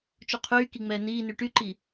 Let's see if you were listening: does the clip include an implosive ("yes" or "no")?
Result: no